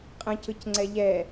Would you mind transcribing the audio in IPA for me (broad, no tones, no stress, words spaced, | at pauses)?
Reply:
qʼə̃cɯcŋ͡ǀɛ ʎɛ